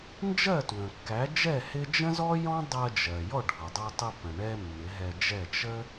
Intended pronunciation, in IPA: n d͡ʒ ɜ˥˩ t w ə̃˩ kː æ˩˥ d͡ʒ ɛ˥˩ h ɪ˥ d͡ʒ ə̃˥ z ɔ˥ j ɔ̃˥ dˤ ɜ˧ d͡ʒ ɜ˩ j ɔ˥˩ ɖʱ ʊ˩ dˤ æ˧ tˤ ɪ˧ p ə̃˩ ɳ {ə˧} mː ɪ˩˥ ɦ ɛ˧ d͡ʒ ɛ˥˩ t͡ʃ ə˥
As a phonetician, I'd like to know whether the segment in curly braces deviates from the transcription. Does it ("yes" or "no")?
yes